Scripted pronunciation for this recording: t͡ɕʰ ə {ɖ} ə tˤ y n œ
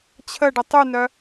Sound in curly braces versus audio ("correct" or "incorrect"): correct